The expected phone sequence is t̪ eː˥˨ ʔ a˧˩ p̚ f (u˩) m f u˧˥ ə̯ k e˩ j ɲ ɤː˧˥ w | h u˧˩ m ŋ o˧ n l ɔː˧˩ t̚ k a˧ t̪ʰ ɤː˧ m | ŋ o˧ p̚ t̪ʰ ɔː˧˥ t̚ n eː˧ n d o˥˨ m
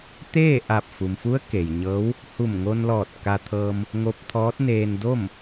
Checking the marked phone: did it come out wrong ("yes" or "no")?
no